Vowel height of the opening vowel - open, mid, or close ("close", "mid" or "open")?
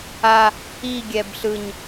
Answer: open